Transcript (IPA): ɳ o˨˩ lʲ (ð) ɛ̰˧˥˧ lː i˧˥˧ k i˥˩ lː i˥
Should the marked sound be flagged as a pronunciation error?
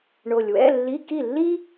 yes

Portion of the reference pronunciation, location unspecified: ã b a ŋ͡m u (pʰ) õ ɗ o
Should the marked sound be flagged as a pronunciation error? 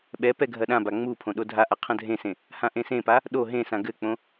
no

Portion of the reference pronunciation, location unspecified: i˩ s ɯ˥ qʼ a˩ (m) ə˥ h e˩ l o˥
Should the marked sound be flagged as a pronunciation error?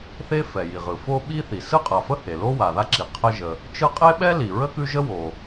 yes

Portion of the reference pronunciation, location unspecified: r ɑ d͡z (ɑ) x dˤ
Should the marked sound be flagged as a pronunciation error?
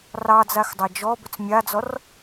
yes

